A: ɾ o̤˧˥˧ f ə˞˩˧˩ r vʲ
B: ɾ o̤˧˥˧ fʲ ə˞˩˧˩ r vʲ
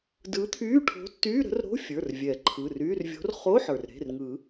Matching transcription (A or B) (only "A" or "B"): B